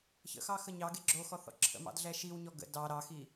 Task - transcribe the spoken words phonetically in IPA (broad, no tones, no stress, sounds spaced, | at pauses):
ç ə̰ x ɑ x ə ɲ ɑ ɡ e ɡ͡ǁ o x ɔ θ ɔ̰ ǁʰ ə̰ m ɑ̰ d ɮ ɛ ʃ i w ɲ ɔ ɡ ə̰ d ɑ ɾ ɑ x i